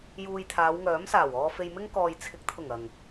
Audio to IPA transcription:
j uː˧ j t̪ʰ aː˨˧ w ŋ œː˨˥ m s aː˨˩ w ɔː˧ f e˧ j m ɪ˥ ŋ k ɔː˨ j t͡sʰ ɪ˨˥ k̚ t̪ʰ ʊ˨˩ ŋ ɐ˨˩ ŋ

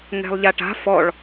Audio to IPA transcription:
ŋ ɛ̤ lˠ ʎ a ʈ a̤ f ɔ ɭ

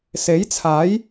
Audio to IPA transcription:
s e˨˥ j t͡sʰ aː˨˥ j

